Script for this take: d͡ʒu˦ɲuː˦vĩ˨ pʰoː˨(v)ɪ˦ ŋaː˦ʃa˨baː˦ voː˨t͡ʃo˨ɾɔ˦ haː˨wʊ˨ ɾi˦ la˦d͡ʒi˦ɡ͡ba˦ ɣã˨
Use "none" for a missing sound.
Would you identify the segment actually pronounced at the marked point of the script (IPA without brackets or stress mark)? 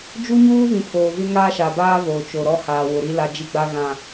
v